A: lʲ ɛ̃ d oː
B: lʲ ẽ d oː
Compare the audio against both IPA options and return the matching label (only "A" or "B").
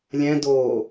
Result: A